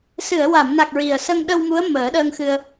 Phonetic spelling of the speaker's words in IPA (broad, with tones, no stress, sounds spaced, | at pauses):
s ɨ˨˩˨ ə̯ w a˨˩˨ m n a˨˩ k̚ ɹ i˨˩ ə̯ s ə˧ ŋ ɗ ə˧ w m u˧˥ ə̯ m əː˨˩˦ ɗ əː˧ ŋ x ɨ˧ ə̯